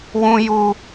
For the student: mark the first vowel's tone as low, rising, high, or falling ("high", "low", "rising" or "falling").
high